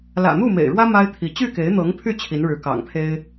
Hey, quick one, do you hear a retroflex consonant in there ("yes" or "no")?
yes